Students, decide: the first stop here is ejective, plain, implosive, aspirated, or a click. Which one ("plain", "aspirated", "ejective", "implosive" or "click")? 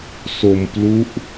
plain